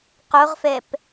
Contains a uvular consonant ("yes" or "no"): yes